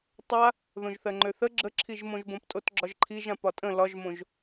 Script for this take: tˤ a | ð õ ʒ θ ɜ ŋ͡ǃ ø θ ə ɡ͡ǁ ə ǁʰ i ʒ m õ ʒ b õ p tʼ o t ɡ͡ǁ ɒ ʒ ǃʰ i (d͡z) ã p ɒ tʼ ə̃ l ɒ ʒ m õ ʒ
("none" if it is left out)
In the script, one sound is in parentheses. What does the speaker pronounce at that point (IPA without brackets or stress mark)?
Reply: ʒ